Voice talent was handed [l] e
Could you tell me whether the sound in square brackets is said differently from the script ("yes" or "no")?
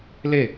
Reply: no